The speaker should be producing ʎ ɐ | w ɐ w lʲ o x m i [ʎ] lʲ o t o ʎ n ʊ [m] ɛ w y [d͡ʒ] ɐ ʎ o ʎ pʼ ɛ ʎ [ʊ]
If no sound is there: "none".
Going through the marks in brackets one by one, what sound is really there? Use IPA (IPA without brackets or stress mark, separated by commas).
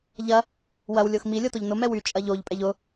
none, m, t͡ʃʼ, ʊ